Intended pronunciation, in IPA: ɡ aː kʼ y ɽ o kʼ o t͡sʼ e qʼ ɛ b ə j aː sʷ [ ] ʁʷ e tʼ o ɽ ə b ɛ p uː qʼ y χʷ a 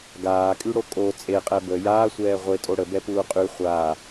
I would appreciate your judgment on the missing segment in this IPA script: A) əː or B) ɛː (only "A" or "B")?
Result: B